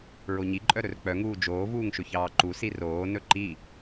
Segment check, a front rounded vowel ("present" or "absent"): present